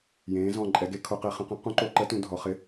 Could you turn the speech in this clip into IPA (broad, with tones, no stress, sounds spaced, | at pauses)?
j ẽː˩˧ z ɔ̃˨˩ ǃʼ ɛ˩˧ ɡ e˩˥ kʰ o˩˧ q e˩˧ χ ə̃˩˧ q ə̃˩˥ q ũ˩˥ ǃ o˩˥ ǃ ə˩˥ t ũ˩˧ dʱ ɔ˩˧ χ ɪ˩˥